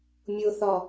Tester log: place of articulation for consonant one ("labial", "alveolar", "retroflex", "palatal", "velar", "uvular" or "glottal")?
labial